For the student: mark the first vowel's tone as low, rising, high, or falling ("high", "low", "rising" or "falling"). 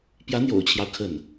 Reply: rising